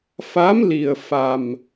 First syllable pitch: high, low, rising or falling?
rising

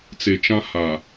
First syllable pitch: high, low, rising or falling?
low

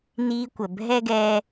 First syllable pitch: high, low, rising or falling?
high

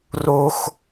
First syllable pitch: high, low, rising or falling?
high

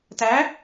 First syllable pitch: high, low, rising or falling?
rising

